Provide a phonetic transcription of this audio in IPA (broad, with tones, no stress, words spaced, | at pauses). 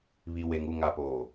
βi˨we˨ŋu˦˨ ŋa˨poː˨